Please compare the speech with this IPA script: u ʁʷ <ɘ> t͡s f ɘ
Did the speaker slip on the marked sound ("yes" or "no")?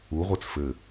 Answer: yes